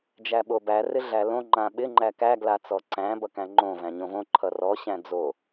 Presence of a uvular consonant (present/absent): absent